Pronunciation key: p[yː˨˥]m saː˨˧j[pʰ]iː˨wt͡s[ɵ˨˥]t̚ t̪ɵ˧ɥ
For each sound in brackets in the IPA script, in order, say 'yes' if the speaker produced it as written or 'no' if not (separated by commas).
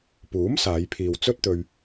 no, yes, no